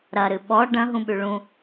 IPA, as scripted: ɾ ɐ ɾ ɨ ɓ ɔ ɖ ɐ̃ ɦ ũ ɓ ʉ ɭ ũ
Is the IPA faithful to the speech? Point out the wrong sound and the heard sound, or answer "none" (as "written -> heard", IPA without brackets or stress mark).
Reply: none